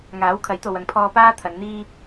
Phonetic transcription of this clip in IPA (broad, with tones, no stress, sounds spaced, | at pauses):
ŋ aː˨˥ w kʰ ɐ˨˥ j t̪ o˨ w ɐ˨ ŋ pʰ ɔː˧ p aː˥ t̪ʰ ɐ˨˧ n n̪ iː˥